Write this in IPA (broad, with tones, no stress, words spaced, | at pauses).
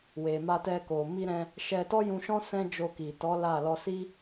we˨ma˧tɛ˧ko˨ mi˧ɾɛ̃˧ | ʃɛ˧tɔ˦ jũ˧ʃɔ̃˦ sɛ̃˦d͡ʒo˧ki˨ tɔ˨˦ la˦˨ lɔ˧si˦